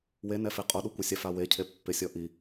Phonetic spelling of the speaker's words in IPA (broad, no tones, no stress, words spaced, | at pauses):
wenɛfe qʼoɗukʷɪsʲaf awecʰe pːɪsʲɔ ʔi